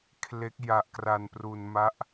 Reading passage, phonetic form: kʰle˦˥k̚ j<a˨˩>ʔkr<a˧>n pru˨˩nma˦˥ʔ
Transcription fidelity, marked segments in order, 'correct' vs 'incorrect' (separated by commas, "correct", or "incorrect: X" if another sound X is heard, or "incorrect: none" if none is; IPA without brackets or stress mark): correct, incorrect: a˨˩